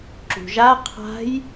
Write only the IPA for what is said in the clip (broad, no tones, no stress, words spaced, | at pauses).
ǁṳʒa qʰa̤j